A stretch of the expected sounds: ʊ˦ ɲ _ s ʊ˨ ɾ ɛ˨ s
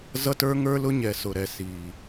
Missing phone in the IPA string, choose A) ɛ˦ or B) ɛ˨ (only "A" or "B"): B